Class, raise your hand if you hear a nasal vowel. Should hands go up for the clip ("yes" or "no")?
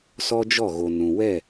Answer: yes